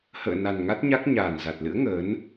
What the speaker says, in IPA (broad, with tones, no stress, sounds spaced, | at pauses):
h ə̰ː˧˨ n a˨˩ n ŋ a˦˥ t̚ ɲ a˦˥ k̚ ɲ aː˨˩ n z a˨˩ t̚ l ɨ̰˧˥ ə̯ ŋ əː˨˦ n